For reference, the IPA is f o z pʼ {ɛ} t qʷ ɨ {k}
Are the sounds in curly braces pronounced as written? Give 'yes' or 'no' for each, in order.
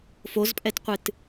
yes, no

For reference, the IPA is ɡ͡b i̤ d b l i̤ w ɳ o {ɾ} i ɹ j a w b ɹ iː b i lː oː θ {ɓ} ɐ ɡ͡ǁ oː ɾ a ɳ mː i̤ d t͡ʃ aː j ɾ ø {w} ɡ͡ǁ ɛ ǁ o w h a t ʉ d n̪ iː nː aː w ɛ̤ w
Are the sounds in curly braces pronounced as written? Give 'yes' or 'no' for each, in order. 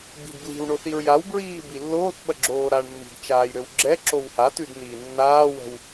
no, yes, yes

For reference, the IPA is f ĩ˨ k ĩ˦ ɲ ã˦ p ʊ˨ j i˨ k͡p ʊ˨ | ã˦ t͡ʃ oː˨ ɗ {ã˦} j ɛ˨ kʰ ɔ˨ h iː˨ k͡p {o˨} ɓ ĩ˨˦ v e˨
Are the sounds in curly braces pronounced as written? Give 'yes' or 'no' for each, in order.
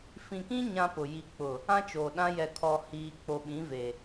yes, yes

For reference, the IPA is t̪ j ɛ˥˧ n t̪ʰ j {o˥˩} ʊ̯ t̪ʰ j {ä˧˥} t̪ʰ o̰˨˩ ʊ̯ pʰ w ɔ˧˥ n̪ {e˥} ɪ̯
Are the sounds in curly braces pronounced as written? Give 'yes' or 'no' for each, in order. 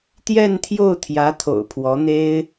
yes, yes, yes

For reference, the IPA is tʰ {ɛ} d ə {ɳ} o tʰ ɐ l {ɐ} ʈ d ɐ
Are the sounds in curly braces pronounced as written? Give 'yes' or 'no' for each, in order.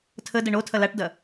no, yes, no

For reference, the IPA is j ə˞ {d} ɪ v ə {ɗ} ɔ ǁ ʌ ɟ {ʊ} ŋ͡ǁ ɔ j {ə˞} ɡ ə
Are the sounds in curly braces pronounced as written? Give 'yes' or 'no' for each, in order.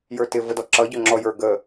no, no, yes, yes

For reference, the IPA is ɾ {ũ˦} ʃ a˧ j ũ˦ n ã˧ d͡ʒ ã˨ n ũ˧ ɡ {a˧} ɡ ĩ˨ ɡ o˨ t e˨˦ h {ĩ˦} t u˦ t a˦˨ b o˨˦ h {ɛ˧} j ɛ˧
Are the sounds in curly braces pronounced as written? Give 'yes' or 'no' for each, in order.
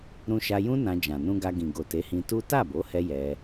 no, yes, no, yes

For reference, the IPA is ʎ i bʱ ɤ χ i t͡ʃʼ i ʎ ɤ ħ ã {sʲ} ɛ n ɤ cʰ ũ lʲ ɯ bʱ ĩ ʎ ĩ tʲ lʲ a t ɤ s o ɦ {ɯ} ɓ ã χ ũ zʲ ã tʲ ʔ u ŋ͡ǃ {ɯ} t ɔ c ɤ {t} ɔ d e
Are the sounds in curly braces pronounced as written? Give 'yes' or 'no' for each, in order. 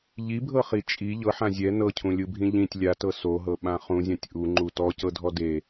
no, no, no, no

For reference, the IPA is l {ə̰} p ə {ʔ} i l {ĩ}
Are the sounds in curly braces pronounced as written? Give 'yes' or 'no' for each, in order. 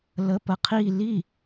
no, no, no

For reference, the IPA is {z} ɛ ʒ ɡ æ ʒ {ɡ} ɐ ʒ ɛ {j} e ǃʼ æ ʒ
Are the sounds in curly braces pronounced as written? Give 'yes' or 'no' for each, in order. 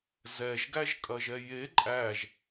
yes, no, yes

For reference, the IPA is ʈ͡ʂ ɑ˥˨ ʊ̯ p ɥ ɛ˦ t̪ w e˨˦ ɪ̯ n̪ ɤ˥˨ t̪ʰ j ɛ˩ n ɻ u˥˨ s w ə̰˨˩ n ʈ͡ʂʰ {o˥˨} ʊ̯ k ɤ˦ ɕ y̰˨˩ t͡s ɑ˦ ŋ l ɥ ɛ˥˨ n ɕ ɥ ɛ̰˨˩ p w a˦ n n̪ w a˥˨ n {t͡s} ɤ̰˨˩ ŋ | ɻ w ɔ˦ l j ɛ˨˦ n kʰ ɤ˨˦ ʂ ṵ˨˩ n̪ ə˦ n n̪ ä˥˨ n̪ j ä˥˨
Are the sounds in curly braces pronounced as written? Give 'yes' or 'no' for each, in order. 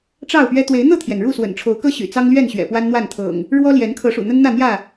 no, no

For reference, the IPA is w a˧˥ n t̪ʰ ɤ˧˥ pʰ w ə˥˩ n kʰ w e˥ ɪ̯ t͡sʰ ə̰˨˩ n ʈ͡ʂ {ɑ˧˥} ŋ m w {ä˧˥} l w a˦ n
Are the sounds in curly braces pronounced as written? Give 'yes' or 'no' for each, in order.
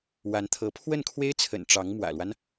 yes, no

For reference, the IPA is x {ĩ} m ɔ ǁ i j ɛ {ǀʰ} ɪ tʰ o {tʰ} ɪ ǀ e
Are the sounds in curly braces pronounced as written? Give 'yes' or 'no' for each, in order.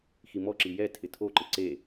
no, no, no

